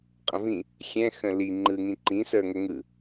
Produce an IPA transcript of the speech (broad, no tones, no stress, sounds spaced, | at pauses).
qʼ ə̃ v ĩ | xʲ ɛ̃ x ə̃ l i ŋ͡ǃ ɯ ŋ ĩ ǃ ĩ s ə˞ ŋ ə ŋ ɯ